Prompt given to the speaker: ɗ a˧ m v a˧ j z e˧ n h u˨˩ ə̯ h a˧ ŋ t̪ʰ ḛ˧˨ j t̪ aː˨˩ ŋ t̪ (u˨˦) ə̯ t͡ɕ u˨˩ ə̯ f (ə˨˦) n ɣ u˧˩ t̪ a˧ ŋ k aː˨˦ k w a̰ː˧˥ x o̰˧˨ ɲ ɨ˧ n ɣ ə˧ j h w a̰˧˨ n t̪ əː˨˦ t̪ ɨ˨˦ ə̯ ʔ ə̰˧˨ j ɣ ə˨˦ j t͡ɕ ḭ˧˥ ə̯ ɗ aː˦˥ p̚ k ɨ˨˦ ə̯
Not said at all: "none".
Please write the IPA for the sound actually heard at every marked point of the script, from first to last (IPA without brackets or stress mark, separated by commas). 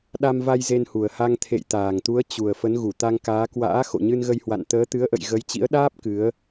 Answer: u˨˦, ə˨˦